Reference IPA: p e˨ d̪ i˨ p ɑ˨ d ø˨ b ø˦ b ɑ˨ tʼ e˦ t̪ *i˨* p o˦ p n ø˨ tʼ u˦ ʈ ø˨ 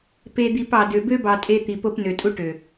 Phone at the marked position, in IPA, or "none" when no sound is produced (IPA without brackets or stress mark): i˨